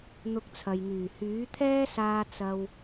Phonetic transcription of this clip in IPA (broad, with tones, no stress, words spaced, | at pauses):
n̪ʊ˧k̚t͡sʰɐ˨jŋyː˨˩ hyː˨˥t̪ʰɛː˥saː˧ t͡sɐ˧w